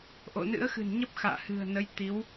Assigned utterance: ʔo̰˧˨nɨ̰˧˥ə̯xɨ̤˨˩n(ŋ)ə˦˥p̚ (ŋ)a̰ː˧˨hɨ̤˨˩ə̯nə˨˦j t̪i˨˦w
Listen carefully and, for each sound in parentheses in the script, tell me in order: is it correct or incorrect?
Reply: incorrect, incorrect

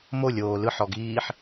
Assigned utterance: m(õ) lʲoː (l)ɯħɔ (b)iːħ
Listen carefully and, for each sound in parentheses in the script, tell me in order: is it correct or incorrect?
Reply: incorrect, correct, incorrect

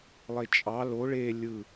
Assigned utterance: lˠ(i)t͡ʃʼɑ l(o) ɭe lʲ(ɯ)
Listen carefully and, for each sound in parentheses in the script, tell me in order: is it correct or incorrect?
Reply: incorrect, correct, correct

